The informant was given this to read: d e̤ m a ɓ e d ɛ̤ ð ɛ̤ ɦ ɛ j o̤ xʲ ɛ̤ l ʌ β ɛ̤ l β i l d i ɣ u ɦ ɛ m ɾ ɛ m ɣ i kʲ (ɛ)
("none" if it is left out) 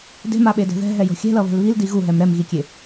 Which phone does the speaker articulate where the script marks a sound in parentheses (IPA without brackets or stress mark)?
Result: e